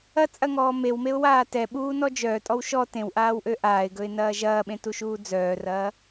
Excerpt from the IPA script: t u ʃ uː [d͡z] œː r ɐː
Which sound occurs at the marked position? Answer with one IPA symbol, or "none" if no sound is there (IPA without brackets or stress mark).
d͡z